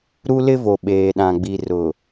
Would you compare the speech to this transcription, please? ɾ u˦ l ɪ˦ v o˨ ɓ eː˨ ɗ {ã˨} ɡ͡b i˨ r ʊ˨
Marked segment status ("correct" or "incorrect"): correct